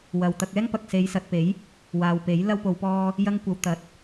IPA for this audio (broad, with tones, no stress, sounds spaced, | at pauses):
w ɐ˨ w t̪ ɐ˧ k̚ ɛː˥ ŋ p ɐ˨ k̚ s e˨˧ j s ɐ˨ t̚ p e˨˥ j | w aː˨ w p e˨˥ j l ɐ˧ w p o˨ w p ɔː˧ | j ɐ˥ ŋ kʷ ɐ˧ w t̪ ɐ˨˥ t̚